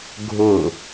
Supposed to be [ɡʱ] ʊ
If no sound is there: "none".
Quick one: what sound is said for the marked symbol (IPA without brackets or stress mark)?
ɡʱ